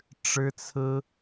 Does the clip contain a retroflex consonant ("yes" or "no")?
yes